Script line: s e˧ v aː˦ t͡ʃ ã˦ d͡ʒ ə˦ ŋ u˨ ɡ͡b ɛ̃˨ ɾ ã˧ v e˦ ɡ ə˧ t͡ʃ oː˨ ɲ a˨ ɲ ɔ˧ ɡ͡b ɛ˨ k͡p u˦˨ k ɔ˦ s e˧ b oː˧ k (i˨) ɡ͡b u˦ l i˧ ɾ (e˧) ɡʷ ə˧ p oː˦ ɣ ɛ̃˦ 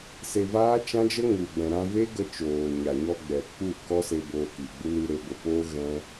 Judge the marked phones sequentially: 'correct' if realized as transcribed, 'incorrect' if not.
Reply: correct, correct

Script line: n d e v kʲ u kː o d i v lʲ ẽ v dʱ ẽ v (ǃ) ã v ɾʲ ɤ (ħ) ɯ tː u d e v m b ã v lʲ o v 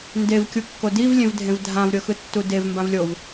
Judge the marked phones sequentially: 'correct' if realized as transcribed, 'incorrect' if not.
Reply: incorrect: dʱ, incorrect: x

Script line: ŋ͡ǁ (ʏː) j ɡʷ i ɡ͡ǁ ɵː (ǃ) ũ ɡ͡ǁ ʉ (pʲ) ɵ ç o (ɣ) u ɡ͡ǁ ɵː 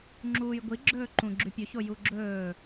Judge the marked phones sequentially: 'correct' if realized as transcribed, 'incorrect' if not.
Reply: incorrect: uː, correct, correct, incorrect: j

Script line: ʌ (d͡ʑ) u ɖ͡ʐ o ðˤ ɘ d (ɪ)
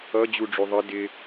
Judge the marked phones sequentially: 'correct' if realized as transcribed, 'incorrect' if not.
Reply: correct, correct

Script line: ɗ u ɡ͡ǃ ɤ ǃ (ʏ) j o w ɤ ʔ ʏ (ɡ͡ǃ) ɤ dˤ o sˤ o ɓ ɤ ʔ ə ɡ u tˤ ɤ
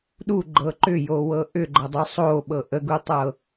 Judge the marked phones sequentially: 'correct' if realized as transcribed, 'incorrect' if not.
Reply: correct, correct

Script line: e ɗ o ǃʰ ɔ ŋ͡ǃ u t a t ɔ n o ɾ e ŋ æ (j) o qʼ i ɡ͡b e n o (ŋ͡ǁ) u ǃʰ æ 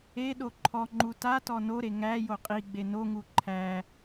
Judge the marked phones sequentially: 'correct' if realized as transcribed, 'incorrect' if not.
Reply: correct, incorrect: ŋ

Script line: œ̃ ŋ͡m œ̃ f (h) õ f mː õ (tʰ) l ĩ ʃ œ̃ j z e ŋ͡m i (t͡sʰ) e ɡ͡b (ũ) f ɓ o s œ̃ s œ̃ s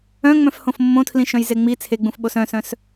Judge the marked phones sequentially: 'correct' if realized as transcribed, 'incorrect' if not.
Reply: correct, correct, correct, correct

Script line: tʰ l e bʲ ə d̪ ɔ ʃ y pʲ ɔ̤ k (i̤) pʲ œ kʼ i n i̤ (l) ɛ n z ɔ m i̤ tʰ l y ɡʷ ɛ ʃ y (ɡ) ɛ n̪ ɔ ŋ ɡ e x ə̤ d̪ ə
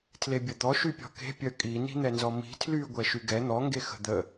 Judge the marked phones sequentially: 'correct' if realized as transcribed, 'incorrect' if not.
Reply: incorrect: e̤, incorrect: n̪, correct

